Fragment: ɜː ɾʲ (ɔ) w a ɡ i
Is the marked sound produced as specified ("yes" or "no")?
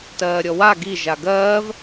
yes